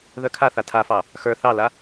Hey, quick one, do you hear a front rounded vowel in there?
yes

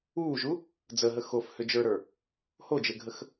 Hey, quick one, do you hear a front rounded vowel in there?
yes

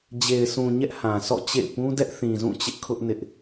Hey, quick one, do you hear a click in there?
no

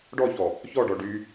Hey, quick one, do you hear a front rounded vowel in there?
yes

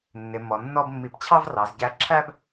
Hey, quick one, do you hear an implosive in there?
no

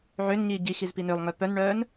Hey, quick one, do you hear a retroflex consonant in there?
yes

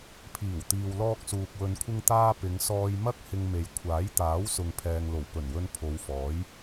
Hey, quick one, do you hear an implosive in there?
no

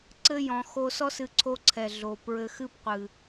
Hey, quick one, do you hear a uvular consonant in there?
yes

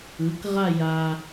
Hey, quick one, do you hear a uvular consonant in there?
yes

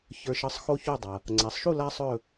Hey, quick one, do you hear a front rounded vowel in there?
no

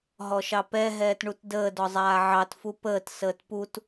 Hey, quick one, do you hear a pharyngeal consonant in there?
yes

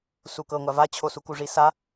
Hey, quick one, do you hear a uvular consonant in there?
no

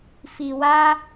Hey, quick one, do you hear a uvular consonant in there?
no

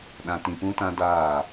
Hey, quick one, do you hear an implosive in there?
yes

